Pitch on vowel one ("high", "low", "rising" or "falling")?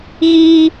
high